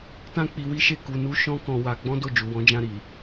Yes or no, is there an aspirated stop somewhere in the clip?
no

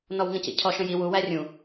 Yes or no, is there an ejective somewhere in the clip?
no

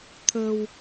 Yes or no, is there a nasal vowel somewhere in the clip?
no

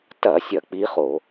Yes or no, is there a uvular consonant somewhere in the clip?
yes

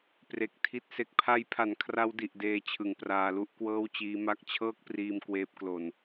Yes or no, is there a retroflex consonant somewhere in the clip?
no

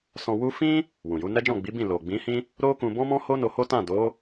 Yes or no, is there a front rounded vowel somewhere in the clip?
no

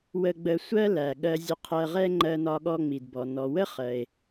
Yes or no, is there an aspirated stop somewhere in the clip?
yes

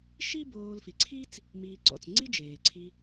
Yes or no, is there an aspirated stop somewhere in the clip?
yes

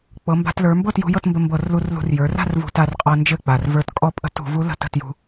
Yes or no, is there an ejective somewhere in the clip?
yes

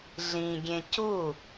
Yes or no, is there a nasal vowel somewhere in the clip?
yes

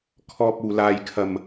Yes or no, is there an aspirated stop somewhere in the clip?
yes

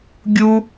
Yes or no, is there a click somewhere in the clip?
no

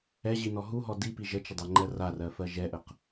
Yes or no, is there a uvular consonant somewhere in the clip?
yes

